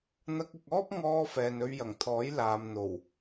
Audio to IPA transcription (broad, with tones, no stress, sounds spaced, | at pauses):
n̪ ɐ˧ k̚ ɪ˨ k̚ ɔː˥ p̚ ŋ ɔː˧ f ɛː˨ n ɵ˧ ɥ j ɐ˨˩ ŋ t̪ʰ ɔː˨˥ j l aː˨ m n̪ o˨˩ w